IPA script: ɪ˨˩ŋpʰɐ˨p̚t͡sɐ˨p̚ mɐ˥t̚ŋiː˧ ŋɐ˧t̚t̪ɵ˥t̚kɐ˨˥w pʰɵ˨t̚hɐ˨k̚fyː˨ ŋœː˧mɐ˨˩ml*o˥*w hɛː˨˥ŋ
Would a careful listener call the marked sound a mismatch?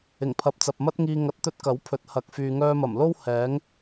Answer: no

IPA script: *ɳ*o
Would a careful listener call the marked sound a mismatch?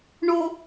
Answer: no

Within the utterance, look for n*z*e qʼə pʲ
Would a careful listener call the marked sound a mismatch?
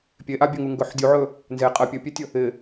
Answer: no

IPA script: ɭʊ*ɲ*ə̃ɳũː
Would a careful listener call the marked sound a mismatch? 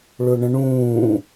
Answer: yes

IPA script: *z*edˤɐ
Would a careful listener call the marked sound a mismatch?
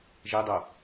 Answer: yes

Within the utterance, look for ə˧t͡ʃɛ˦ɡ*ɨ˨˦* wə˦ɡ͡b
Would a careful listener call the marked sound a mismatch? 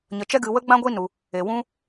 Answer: yes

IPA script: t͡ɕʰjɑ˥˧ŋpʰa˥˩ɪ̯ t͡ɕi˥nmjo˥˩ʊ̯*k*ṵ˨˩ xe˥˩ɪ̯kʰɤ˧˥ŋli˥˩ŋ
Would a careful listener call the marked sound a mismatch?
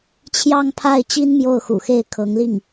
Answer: yes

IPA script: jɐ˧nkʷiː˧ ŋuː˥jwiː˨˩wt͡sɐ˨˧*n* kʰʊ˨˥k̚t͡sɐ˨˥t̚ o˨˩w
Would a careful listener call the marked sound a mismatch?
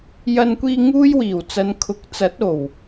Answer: no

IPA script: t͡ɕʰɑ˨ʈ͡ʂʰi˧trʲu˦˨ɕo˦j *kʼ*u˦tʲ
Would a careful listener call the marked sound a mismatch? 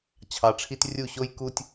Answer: yes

